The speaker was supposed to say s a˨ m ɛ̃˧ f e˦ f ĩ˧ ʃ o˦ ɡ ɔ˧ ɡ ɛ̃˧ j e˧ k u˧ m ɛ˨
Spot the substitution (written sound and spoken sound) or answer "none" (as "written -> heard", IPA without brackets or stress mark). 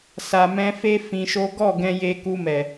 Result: ɔ˧ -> ɔ˦˨